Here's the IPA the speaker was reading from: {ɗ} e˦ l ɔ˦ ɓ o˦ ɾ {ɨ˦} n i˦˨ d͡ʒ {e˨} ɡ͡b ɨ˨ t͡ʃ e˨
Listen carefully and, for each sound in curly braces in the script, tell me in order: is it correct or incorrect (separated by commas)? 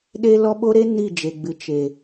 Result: correct, incorrect, correct